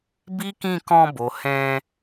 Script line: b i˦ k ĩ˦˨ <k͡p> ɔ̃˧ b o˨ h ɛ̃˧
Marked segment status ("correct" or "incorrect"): incorrect